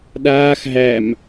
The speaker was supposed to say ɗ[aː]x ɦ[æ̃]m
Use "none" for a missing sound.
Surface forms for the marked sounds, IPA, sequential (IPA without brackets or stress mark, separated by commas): aː, æ